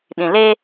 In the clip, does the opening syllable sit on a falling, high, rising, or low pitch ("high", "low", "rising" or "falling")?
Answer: low